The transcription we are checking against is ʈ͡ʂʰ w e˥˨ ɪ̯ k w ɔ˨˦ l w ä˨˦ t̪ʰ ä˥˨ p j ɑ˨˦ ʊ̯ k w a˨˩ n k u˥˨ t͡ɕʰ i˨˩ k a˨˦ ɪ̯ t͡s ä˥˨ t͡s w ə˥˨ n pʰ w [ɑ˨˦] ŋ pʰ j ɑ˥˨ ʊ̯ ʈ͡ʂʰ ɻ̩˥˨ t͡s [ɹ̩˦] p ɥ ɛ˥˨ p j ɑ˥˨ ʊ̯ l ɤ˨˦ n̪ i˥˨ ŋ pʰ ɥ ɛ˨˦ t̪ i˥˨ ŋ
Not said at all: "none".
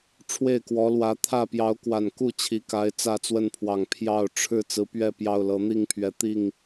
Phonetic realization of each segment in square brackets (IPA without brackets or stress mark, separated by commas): ɑ˨˩, ɹ̩˨˦